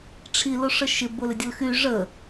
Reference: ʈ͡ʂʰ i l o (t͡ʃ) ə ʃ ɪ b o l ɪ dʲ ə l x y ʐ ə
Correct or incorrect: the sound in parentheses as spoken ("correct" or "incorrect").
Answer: incorrect